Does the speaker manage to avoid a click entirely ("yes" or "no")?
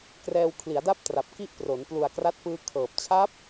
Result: yes